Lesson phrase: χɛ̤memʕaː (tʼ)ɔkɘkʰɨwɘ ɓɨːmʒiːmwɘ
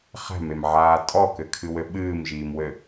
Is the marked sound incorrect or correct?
correct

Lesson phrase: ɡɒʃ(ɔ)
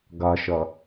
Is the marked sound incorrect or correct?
correct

